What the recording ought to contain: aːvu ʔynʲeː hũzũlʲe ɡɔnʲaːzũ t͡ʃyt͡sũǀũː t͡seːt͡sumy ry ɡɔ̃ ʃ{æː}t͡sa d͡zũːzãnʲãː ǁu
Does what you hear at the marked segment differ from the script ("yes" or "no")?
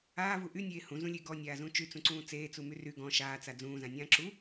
yes